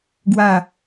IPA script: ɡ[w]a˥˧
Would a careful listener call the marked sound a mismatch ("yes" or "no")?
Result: no